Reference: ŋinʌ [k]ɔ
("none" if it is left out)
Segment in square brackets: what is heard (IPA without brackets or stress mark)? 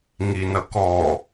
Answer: k